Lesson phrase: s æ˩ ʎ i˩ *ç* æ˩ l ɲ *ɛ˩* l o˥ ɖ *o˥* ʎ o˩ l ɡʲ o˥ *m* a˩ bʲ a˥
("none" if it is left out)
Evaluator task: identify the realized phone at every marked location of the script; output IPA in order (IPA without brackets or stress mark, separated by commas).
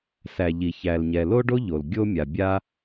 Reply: ç, ɛ˩, o˥, mʲ